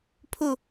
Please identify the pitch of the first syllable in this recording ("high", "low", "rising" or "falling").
falling